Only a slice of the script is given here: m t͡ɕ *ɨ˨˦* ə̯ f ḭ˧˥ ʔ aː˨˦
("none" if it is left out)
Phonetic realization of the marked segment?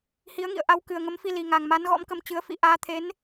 ɨ˨˦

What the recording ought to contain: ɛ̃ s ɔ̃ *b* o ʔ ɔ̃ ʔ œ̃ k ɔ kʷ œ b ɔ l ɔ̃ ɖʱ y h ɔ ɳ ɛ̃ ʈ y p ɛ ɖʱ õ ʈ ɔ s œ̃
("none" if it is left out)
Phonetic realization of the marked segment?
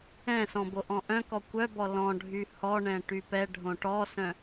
b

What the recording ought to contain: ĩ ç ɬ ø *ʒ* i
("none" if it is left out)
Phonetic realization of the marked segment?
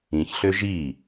ʒ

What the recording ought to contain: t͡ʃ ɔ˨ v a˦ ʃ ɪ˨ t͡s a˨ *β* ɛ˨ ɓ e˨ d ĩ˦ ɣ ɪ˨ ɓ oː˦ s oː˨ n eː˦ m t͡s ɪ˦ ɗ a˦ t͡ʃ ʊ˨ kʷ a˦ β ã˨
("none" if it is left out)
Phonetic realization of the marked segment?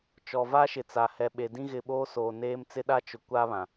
h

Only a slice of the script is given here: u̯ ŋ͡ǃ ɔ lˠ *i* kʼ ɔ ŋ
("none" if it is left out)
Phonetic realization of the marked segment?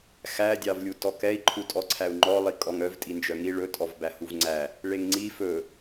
i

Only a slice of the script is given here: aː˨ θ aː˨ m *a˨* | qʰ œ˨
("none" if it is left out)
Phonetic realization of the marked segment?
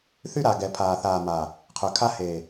a˨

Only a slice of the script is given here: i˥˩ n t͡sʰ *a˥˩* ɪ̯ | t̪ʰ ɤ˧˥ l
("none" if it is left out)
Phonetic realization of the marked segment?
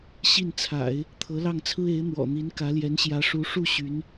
a̰˨˩˦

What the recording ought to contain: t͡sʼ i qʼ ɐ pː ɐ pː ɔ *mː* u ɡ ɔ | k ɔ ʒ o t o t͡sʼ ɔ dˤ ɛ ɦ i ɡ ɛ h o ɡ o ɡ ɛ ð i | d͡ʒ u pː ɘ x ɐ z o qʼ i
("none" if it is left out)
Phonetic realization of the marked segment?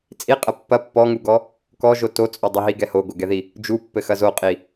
ŋ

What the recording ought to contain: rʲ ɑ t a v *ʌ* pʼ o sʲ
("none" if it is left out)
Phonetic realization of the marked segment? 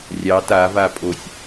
a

